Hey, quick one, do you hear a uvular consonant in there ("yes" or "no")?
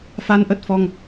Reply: no